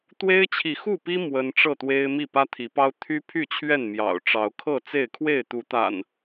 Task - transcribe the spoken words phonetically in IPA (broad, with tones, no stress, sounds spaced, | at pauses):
t̪ w e˦ ɪ̯ t͡ɕʰ i˨ x u˥˨ p i˦ m w ə˦ n ʈ͡ʂ ɤ˥˨ t̪ w e˦ ɪ̯ m i˥˨ p ä˦ t̪ʰ i˨˦ p ɑ˦ ʊ̯ t̪ʰ y˦ pʰ y˥˨ t͡ɕʰ ɥ ɛ˥˨ n m j ɑ̰˨˩ ʊ̯ ʈ͡ʂ ɑ˨˦ ʊ̯ kʰ ɤ˥˨ t͡s e˥˨ ɪ̯ kʰ w e˥˨ ɪ̯ t̪ u˨˦ t̪ a̰˨˩ n